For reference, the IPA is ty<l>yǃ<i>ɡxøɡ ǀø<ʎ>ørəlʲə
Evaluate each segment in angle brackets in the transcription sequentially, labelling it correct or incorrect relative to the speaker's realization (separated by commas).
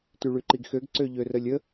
incorrect, correct, correct